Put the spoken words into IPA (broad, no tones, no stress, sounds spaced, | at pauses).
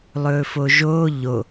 lˠ ɵː f o ʒ oː ʎ o